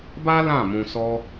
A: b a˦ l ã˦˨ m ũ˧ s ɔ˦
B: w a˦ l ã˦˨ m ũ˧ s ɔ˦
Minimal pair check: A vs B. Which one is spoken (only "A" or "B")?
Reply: A